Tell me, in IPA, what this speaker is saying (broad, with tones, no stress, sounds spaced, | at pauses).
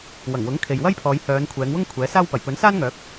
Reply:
w ɐ˨˩ ŋ w ʊ˨˥ ŋ kʰ e˨ j w ɐ˥ j pʰ ɔː˨˧ j h œː˨˧ n kʷʰ ɛː˨˧ ŋ w ʊ˥ ŋ kʷʰ ɛː˨˥ s aː˥ w p ɐ˨˩ j p ɵ˨˥ n s aː˥ n ŋ œː˨˥ k̚